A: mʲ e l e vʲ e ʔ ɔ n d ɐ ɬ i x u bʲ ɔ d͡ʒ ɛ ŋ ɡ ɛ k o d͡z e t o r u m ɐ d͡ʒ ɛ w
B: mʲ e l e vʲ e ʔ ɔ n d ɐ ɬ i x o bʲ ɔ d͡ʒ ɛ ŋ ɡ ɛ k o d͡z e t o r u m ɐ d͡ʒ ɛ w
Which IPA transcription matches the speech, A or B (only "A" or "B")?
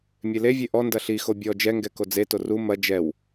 B